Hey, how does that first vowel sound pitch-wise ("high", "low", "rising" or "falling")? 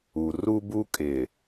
low